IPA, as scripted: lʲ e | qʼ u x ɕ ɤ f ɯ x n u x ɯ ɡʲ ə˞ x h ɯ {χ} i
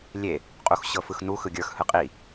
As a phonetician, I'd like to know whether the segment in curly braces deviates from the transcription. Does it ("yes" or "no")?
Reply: yes